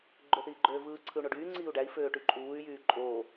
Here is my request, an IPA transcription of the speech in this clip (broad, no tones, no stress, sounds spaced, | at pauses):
ɡ͡ǃ ø θ iː ɡ͡ǃ øː v ɯː ǀʰ ɯ u̯ ɳ o ɖ yː ŋ͡ǀ iː u̯ ɖ æ i̯ f øː ʈ y ǃʼ uː y̯ j yː ǃʼ oː